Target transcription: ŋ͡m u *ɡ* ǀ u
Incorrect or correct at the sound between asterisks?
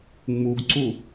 correct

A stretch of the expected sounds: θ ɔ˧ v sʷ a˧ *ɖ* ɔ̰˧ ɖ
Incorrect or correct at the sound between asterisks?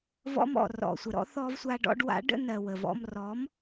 correct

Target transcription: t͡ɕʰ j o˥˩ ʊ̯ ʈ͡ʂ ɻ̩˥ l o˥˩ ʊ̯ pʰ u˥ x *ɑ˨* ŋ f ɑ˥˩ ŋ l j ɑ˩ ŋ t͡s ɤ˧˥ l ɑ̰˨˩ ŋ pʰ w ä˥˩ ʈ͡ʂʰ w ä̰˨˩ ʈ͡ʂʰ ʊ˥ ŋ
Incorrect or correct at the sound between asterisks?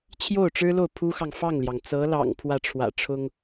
correct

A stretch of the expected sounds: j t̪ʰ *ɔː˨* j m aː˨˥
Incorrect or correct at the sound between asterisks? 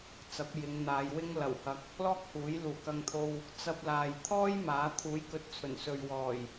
incorrect: ɔː˥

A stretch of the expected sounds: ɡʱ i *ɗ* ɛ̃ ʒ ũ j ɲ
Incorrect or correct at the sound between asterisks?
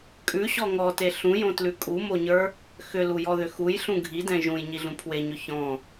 incorrect: d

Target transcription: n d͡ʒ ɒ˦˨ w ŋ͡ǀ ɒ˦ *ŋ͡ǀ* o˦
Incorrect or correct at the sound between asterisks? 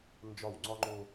incorrect: ŋ͡ǃ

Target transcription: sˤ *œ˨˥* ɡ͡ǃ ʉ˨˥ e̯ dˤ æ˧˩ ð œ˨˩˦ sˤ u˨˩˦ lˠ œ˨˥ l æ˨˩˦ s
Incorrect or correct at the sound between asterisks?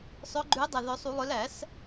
correct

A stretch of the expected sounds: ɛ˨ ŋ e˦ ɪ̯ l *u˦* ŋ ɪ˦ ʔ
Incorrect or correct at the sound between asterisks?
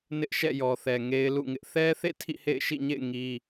incorrect: ṵ˦˨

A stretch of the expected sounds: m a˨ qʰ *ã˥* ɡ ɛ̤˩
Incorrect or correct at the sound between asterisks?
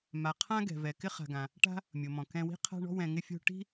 correct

